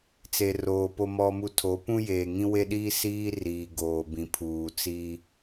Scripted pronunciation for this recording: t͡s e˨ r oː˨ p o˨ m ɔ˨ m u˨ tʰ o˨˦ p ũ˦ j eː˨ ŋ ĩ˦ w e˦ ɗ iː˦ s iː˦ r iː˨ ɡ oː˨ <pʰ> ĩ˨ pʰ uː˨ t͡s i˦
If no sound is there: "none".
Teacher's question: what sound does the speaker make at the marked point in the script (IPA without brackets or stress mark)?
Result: b